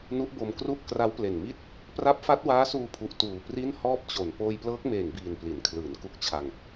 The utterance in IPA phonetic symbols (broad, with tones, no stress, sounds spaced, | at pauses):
n u˦˥ ʔ b o˧ m k r u˥˩ ʔ k r a˦˥ w p l e˨˩ n m i˥˩ t̚ | p r a˦˥ p̚ f a˦˥ t̚ w aː˦˥ s uː˧ pʰ u˨˩ ʔ t uː˨˩ p r i˥˩ n h ɔː˥˩ p̚ t͡ɕ o˨˩ n p oː˧ j p l ɤː˦˥ k̚ m eː˨˩ ŋ b iː˨˩ n p l i˩˦ n kʰ l ɯː˩˦ n k u˦˥ k̚ t͡ɕʰ a˧ ŋ